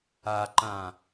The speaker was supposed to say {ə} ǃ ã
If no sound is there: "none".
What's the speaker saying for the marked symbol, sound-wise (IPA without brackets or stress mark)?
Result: a